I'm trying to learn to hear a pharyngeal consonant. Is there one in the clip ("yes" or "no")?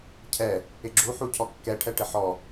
yes